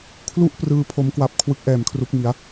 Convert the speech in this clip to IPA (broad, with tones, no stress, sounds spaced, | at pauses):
kʰ l u˥˩ ʔ p r ɯː˧ pʰ o˧ m k w a˦˥ p̚ kʰ w ɯ˦˥ k̚ ʔ ɛː˨˩ m kʰ r u˦˥ k̚ m i˩˦ a̯